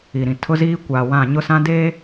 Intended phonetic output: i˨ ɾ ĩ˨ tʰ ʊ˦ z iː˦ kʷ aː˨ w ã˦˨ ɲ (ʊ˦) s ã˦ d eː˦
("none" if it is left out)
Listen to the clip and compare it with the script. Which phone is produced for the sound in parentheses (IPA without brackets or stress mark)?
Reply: ʊ˦